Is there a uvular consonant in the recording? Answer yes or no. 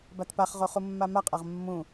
yes